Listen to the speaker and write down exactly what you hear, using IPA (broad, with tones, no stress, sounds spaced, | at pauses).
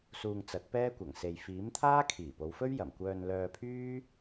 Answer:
s uː˧ ŋ t͡s ɐ˨˥ t̚ p ɛː˥ kʷ ɐ˨˩ ŋ s e˨ j f iː˨˥ m t̪ʰ aː˥ kʰ iː˨˩ p o˨˧ w f ɵ˥ ɥ j ɐ˨˩ m kʷ œː˧ n l œː˧ pʰ yː˥